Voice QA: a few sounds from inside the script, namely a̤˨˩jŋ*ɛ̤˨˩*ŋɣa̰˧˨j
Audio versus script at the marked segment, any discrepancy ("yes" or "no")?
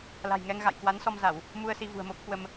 yes